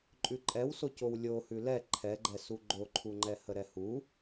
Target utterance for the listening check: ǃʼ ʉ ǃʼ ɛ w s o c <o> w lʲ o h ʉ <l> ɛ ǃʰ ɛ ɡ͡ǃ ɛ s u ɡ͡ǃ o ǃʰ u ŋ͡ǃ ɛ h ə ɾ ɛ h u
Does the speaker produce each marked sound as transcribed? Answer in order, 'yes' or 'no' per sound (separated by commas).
yes, yes